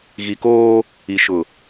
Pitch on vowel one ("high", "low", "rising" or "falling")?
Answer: low